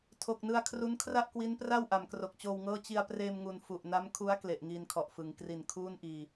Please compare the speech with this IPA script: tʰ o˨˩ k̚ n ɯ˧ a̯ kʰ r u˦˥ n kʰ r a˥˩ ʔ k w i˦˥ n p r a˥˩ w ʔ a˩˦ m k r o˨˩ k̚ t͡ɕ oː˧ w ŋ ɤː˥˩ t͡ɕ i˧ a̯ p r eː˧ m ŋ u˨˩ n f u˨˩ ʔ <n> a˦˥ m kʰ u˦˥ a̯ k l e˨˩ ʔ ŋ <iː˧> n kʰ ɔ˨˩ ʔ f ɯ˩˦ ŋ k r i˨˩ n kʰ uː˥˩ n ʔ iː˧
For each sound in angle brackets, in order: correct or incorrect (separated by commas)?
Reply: correct, correct